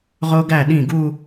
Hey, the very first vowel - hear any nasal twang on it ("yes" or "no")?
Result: no